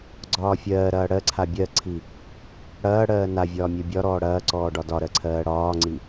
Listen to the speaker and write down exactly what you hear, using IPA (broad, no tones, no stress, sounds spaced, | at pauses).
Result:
ɡ͡ǀ ɒː fʲ ɜː ɾ ɐː ɽ ɜ ǀʰ a bʲ ɜ ǀʰ i | ɽ ɐː ɽ ɜː n a vʲ ɒː mʲ ɜ bʲ ɒ ɾ ɔː ɽ ɐː ǀ ɔː ɖ ɒ d ɒ ɾ ɜ ǀʰ ɜː ɽ ɒː ŋ͡ǀ i